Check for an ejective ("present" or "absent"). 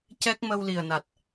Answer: absent